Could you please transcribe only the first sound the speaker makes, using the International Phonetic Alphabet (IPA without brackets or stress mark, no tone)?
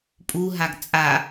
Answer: pʼ